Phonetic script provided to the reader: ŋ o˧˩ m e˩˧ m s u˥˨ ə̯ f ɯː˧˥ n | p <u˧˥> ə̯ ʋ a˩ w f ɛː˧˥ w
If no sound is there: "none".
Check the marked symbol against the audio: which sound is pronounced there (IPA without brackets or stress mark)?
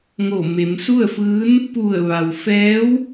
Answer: u˧˩